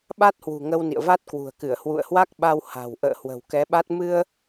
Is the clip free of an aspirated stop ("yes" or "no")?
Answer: yes